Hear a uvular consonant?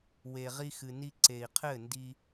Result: yes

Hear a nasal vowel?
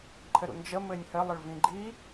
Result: yes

